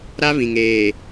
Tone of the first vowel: high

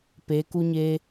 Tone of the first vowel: rising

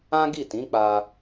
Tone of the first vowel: high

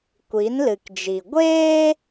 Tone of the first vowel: rising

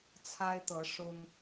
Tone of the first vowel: high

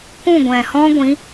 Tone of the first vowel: falling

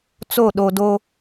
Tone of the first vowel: falling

